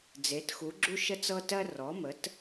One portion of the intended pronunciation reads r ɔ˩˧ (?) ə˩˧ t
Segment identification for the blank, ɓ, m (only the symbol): m